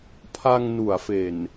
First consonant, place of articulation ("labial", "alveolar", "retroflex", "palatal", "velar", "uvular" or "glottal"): labial